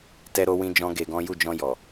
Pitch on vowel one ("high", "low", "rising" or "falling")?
high